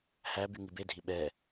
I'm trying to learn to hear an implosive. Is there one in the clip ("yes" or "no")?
yes